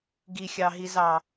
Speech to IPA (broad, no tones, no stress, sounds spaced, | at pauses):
ɡ i xʲ ɑ ɦ i z ɑ